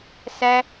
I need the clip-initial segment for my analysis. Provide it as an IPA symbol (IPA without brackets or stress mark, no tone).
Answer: s